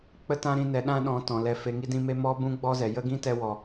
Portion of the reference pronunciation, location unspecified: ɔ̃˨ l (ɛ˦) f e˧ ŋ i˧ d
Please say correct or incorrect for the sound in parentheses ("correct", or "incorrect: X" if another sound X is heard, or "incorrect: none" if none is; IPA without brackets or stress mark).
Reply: incorrect: ɛ˧